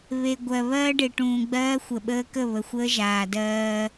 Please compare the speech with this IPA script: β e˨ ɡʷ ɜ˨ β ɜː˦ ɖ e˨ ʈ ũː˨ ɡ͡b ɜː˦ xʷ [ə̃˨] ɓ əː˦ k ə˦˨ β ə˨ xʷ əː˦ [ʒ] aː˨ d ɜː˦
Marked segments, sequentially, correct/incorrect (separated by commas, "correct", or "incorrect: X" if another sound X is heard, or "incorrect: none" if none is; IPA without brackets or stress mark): incorrect: ə˨, correct